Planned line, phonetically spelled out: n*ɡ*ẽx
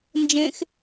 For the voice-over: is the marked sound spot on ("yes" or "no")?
no